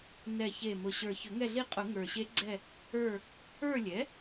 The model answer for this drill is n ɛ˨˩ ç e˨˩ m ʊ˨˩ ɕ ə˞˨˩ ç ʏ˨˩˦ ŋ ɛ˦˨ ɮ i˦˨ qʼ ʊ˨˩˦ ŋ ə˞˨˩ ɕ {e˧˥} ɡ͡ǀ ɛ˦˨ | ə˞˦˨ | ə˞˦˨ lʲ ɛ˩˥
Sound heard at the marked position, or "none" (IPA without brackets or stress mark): e˧˥